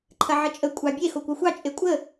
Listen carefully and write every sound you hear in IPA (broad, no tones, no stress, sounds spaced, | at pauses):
ǃʰ ɐ ʕ ə t͡ʃʼ ə kʷʼ ɑ bʲ e x o kʷ ɑ xʷ ɑ t͡ʃʼ e kʷʼ ə